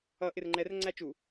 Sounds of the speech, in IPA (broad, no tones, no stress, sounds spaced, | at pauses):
ʌ ʔ ɪ r ŋ͡ǃ ɛ r ŋ͡ǀ æ t͡ʃ u